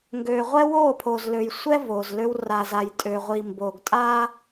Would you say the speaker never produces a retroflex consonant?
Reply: yes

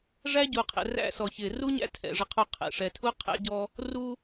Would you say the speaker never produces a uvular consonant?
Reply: no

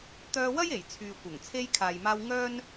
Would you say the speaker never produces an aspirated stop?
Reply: no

